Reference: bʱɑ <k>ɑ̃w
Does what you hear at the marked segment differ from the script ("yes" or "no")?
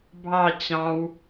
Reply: yes